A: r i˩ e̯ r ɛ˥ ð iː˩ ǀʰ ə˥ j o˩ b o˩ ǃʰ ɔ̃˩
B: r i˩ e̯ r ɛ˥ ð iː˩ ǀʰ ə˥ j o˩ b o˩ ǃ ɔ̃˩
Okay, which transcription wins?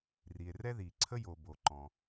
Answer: B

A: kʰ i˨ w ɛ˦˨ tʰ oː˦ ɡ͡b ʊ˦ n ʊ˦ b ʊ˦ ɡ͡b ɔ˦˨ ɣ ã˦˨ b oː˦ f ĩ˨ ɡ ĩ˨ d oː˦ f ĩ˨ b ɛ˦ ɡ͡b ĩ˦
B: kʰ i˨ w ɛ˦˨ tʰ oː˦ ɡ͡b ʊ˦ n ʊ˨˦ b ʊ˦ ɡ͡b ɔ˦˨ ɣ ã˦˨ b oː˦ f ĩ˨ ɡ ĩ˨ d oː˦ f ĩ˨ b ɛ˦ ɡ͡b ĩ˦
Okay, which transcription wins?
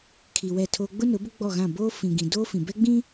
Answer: B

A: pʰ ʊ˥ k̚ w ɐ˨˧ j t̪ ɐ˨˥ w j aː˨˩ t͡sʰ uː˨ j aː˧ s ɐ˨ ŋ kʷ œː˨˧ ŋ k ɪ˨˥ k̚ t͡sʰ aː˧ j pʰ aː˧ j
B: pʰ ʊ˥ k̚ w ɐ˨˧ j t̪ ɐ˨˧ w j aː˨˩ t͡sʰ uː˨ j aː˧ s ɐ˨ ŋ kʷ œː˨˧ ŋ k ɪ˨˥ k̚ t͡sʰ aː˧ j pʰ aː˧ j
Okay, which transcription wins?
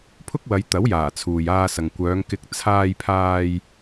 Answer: A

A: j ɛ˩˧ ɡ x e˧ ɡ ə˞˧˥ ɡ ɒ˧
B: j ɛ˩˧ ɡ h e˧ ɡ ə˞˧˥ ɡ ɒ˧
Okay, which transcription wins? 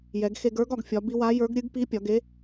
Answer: A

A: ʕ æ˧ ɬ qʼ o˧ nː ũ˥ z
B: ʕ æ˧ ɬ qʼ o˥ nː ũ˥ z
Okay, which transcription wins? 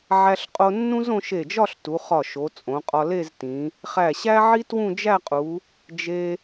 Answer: A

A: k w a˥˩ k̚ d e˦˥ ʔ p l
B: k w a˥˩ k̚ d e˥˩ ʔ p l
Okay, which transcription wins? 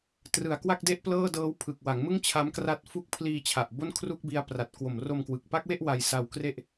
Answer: B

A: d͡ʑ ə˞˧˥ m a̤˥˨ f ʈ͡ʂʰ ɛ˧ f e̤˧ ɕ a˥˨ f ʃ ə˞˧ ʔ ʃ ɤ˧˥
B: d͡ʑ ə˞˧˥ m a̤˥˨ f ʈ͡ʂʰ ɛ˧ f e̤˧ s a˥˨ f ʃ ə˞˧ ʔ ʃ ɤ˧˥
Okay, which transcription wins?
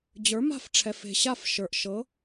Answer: A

